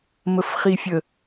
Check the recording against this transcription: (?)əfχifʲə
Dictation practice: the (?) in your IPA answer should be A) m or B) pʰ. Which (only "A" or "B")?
A